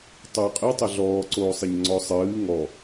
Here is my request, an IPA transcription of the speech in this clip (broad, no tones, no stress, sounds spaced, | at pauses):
tˤ oː qʼ e tˤ ɘ ɮ ɔː ǀ oː sˤ ɘ ɲ ŋ͡ǀ ɔ sˤ ɨː ŋ ɔ